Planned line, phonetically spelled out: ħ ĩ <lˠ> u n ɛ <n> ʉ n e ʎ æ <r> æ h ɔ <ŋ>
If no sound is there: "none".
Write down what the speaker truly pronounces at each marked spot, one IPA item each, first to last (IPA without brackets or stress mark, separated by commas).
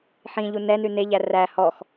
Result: ʎ, n, r, x